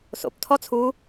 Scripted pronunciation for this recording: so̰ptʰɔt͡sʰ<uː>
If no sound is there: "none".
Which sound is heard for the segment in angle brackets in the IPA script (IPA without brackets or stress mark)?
uː